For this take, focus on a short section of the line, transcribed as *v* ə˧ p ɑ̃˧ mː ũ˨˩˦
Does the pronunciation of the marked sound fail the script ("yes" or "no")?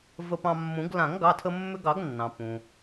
no